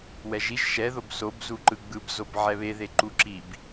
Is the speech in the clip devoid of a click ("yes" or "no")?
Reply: no